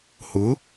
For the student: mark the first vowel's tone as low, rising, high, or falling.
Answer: rising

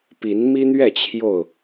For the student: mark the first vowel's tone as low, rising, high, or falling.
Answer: rising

